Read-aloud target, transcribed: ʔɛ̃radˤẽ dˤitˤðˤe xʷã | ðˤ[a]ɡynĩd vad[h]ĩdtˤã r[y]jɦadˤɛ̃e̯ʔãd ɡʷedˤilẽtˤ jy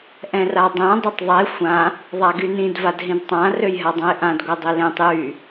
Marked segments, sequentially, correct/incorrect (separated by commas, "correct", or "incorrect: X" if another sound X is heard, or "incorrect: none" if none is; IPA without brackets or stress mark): correct, incorrect: ɦ, incorrect: ø